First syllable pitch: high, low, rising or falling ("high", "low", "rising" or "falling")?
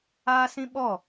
high